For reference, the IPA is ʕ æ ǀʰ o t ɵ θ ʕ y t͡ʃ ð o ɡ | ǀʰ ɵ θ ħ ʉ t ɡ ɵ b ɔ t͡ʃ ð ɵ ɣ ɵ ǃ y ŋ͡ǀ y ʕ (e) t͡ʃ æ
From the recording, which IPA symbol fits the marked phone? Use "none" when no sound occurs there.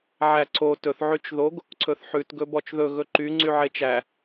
e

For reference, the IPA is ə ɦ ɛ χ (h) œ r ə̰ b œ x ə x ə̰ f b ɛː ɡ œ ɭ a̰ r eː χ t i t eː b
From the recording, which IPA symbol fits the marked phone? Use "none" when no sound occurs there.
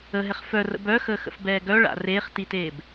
f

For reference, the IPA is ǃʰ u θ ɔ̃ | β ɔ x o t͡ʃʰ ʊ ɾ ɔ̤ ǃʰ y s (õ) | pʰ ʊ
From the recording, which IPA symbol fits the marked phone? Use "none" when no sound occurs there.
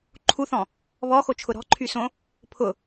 õ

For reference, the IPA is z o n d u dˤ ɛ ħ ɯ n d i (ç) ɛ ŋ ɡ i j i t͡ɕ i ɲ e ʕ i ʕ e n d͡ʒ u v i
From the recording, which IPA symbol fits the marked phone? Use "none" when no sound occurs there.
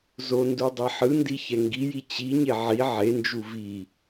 ç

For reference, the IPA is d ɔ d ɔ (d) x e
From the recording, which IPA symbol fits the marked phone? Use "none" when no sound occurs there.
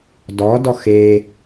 none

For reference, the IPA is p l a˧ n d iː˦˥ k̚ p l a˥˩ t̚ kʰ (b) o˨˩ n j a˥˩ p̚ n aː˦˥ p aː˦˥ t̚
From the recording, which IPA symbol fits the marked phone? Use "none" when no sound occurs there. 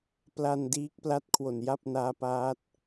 w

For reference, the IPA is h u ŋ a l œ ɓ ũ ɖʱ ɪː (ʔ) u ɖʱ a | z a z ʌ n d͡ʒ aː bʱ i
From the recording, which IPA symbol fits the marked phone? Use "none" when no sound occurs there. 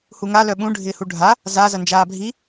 h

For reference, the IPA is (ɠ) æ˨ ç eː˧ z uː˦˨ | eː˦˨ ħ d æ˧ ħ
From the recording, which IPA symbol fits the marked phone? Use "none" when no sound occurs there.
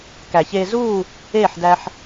k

